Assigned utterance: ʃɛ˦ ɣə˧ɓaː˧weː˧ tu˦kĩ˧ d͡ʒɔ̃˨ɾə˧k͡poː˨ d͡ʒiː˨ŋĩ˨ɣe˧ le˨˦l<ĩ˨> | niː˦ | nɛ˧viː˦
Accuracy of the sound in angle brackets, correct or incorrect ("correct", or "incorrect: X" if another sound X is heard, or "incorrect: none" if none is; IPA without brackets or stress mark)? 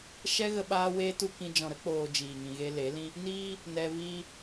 incorrect: ĩ˦